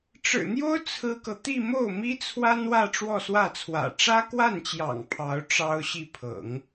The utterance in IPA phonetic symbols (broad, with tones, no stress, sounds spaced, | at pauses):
ʈ͡ʂ ɻ̩˨˩ n̪ j o˥ ʊ̯ t͡sʰ ɹ̩˥ k ɤ˨ t̪ i˥˧ m o˥˩ ʊ̯ m i˥ t͡sʰ w a˥ n w ä˥˧ ʈ͡ʂ w ɔ˥˧ s w ä˥˩ t͡sʰ w ä̰˨˩ ʈ͡ʂ ä˥ k w a˥˩ n t͡ɕ j ɑ̰˨˩ ŋ pʰ ɑ˧˥ ʊ̯ ʈ͡ʂ ɑ˥ ʊ̯ ɕ i˥˩ pʰ ɤ̰˨˩˦ ŋ